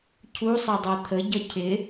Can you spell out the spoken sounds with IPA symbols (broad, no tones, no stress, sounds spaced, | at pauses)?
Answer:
cʰ u sˤ ɛ dˤ ɜ t̪ʰ ə ɟ ʌ cʰ ɪ